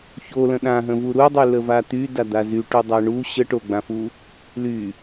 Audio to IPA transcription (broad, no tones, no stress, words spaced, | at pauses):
çolə̃ ɗãɦə̃vu ɾudˤyləva t̪ydad̪a zyʈudˤa ɳu ɕə ʈoɡ͡bãfu | ly